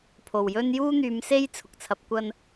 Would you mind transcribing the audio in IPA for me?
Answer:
pʰ o˨˩ w j ɵ˥ n j uː˥ n̪ yː˨˧ m s e˥ j t͡sʰ ʊ˨ k̚ t͡sʰ ɐ˨˥ p̚ kʷ ɐ˥ n

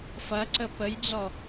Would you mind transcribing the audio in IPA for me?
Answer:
f ɐ ǀ ə p ə j d͡z ɔ

